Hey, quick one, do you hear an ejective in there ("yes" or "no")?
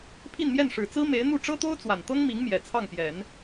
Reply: no